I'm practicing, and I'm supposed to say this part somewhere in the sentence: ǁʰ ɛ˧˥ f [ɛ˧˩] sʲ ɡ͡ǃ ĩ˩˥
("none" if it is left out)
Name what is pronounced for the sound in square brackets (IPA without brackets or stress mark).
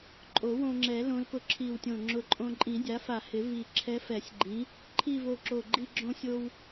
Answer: ɛ˨˩˦